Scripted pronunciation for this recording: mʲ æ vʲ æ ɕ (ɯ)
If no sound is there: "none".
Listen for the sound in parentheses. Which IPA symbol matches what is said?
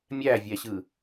ɯ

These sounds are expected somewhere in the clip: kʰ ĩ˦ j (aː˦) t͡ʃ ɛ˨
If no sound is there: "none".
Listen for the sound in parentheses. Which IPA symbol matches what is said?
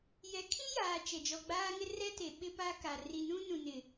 aː˨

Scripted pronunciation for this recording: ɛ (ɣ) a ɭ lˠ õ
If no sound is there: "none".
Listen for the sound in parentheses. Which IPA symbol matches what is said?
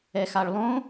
x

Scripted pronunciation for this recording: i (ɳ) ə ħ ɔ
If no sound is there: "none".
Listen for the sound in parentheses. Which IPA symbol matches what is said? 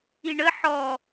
ɳ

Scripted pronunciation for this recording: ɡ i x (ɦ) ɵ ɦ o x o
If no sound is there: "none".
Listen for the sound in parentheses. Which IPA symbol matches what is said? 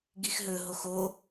ɦ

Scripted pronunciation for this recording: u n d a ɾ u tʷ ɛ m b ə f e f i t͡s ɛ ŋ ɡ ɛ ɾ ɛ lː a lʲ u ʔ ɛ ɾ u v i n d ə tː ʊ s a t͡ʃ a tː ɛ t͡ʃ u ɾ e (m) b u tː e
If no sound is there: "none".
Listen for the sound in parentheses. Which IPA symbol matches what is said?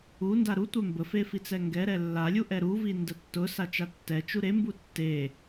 m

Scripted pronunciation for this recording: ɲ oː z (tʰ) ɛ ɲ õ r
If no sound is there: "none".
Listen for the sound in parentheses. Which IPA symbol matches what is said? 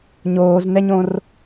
n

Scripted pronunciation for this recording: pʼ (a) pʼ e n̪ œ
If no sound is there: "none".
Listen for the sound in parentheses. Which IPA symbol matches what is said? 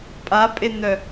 a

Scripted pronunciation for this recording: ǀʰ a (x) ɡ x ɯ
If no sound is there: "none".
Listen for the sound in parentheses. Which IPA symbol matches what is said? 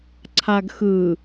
none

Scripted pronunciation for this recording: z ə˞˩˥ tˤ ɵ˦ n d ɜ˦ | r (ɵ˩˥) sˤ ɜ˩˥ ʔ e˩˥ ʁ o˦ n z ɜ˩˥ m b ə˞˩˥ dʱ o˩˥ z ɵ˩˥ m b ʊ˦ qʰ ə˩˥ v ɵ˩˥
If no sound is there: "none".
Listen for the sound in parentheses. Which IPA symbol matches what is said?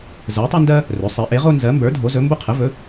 ɵ˩˥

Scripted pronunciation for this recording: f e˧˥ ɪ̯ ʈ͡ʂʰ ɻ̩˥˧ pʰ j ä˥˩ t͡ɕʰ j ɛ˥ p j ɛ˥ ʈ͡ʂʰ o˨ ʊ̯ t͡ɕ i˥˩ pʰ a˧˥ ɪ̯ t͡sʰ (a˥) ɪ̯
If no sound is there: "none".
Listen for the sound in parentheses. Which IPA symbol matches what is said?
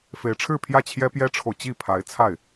a˥˩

